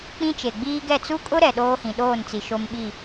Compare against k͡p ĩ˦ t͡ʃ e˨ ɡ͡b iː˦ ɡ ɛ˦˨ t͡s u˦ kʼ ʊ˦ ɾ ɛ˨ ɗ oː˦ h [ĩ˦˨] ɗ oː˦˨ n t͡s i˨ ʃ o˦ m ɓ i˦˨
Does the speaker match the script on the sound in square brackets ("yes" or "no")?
no